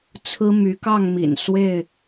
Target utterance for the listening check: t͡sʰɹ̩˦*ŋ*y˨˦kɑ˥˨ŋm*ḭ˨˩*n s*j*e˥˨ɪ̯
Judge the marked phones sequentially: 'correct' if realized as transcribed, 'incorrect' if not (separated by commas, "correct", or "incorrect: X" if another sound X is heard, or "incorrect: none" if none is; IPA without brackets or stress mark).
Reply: incorrect: m, correct, incorrect: w